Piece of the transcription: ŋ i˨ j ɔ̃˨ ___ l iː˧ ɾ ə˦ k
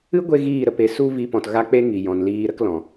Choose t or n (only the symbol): n